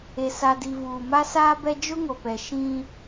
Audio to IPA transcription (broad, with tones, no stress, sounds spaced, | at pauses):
e˨ s a˨ d i˨ v uː˨ m a˦ s aː˦ b ɛ˦ d͡ʒ ʊ˦ ŋ o˨ p ɛ˨ ʃ ĩ˦